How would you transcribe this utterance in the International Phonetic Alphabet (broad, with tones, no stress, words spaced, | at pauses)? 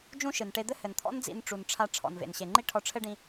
d͡ʒũ˥ʃɨ˩n ʈe˧d̪ɘ˥hɘ˩nt̪ʰɔ̰˥n d͡zḭ˧nʈ͡ʂu˩n ʈ͡ʂʰa˧ ʈ͡ʂʰɔ̰˩nvḛ˩nɕe˩ ŋ͡ǃi˥ʈʰɔ˧ʈ͡ʂʰɘ˥ɖĩ˧